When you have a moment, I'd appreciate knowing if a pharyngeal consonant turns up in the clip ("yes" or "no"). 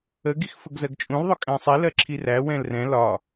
no